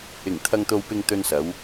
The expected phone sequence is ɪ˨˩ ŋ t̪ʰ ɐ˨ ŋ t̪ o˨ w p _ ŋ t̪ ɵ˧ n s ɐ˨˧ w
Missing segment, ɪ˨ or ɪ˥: ɪ˨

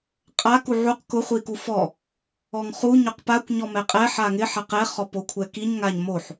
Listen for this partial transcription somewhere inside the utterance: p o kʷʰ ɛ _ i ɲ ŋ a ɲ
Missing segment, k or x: k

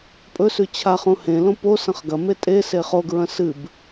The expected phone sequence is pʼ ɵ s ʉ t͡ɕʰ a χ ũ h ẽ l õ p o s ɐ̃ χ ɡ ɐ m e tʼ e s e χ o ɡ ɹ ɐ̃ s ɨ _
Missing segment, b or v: b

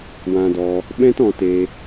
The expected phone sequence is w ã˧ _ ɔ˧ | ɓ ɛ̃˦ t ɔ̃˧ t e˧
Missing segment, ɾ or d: d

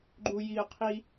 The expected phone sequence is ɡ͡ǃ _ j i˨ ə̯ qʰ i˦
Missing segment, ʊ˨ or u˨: u˨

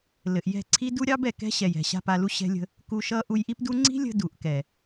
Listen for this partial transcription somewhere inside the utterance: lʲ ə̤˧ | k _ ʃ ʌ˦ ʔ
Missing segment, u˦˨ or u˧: u˧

